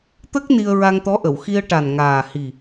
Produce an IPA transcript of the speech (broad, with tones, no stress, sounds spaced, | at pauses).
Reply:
t̪ ə˦˥ k̚ n i˧ ə̯ ɹ a˧ ŋ t̪ ɔ˧˥ ʔ ə˨˩˨ w x i˧ ə̯ ʈ a˨˩ n ŋ aː˨˩ h i˨˩